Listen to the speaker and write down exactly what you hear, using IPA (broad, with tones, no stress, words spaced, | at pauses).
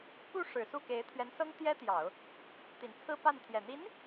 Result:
pu˥˩ ʂɻ̩˨˩su˥˩ke˧˥ɪ̯ t̪ʰɥɛ˧˥nsɤ˥ŋ t̪jɛ˥t̪jɑ˨˩˦ʊ̯ | t̪i˨˩nt͡sʰɹ̩˥pa˥˩nt̪ʰjɛ˨˩ n̪i˧˥n